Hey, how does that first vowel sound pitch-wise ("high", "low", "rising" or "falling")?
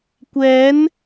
rising